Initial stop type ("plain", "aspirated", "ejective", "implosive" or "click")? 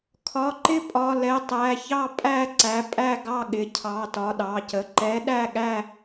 aspirated